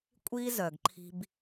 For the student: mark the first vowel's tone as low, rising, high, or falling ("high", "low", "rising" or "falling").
high